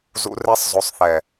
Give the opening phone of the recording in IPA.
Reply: z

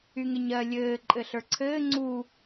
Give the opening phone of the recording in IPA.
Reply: y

